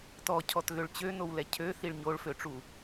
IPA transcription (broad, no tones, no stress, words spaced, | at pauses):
tɔcʰɔtɣøɭ t͡ɕønowlɛ cʰøθiɭ ɲoɭføʈ͡ʂu